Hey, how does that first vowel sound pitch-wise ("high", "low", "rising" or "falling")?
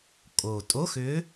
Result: low